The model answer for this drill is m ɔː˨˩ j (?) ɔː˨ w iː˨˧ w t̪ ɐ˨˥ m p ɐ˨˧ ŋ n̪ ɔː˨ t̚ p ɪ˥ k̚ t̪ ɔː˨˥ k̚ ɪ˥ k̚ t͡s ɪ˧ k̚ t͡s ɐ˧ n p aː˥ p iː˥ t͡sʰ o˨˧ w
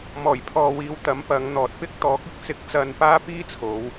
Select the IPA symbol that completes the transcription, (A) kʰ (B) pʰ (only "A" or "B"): B